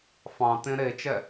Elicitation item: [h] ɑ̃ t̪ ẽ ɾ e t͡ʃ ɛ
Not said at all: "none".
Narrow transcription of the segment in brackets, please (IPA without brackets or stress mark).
f